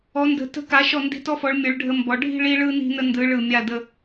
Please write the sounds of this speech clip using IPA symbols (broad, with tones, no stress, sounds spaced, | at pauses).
ɔ˩˧ n d ə̤˩˧ t ə̤˧˩ k a˩˧ ʃ ɔ˧˩ n d i̤˧˩ t ɔ˧ f ɔ˩˧ ɭ mʲ ɯ˩˧ ɭ ɖʱ ə˧ m b ɔ˩˧ ɖʱ i̤˥˧ ɭ i˧ ɭ ɯ˧ n i̤˧ n ə˧ n d ɯ˩˧ ɭ ɯ˧˩ mʲ a˧˩ d ə˧